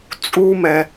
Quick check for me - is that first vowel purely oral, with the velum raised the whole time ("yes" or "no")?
yes